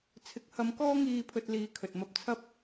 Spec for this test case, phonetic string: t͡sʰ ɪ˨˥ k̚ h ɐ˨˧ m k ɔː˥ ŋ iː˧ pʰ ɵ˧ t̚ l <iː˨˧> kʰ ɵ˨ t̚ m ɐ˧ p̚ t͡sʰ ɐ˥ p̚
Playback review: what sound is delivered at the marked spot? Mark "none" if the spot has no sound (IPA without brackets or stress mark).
iː˨˧